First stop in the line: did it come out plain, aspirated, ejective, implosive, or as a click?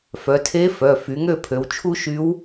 aspirated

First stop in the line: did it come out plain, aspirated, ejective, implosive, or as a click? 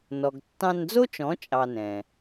plain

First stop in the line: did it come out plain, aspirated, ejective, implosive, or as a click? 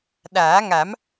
implosive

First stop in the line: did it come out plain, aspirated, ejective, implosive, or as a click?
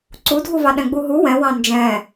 click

